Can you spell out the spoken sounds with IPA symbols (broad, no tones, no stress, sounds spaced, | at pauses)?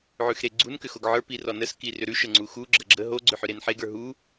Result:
ʕ ʉ x ɾ e ɡ͡ǀ u n k ʏ x o ɡ ʕ ə˞ p i r ɔ n ə s k i r ʏ ɾ ʉ ʃ ə ŋ͡ǀ u x u ɡ͡ǁ ə ɡ͡ǁ ə ɦ o ɡ͡ǀ ʏ ħ ʏ ɾ e n ħ e ɡ ə˞ ɦ u